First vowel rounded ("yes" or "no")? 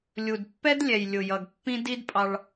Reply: yes